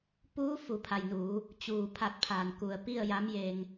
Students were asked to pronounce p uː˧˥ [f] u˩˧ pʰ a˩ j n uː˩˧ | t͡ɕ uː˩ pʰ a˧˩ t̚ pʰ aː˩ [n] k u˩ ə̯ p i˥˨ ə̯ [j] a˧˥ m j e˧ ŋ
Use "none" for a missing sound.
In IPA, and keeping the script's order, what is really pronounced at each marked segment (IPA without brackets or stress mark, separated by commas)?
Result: f, n, j